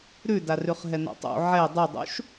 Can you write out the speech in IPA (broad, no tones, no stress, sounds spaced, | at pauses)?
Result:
ɾ ʉ d a r ʉ χ ɦ ɛ n a̰ tˤ ṵ ʕ ɛ dˤ ɯ dˤ ṵ ʃ